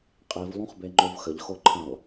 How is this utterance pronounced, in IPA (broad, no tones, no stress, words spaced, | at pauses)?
qʼiv lˠũχbeŋ͡ǃovxəʎ xoǃʰə̃lˠ